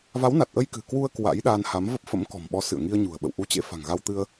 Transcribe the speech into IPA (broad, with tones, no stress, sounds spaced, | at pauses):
v a˨˦ w n a˨˩ t̚ ʔ ə˧ j k ɨ̤˨˩ k w u˧ ə̯ k w a̰˧˥ j ɗ a˧ n h a˨˦ m v ə˦˥ p̚ f ə̰˧˥ m k ɔ̤˨˩ m ɓ ɔ˨˦ s ɨ̰˧˨ ə̯ ŋ i˧ ə̯ ɲ ṳ˨˩ ə̯ ɓ ə̰˧˨ w ʔ u˨˦ t͡ɕ ḛ˧˥ f a̤˨˩ ŋ ɣ a˧ w t̪ ɨ˧ ə̯